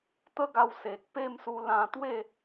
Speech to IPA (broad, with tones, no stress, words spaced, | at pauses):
t̪ə˦ɡa˧w se˨k̚pe˥˧msu˧ lã˧t̪we˥˧